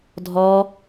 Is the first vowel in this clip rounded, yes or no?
yes